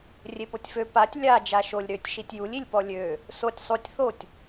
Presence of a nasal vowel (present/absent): absent